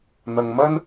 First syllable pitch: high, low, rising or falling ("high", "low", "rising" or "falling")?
low